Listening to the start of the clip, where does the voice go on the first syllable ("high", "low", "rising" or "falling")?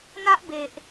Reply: high